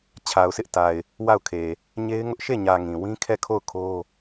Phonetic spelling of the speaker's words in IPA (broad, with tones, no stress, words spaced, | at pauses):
t͡ɕʰa˨ʊ̯sɪ˦ʔta˨ɪ̯ | wa˦˨ʊ̯kʰe˨ | ɲe˦ɪ̯ŋʊ˦ʔ ʃe˦˨ɲä˨ ŋĩ˨ wĩ˦kʰɛ˦˨kʰo˦˨ʊ̯ kʰo˦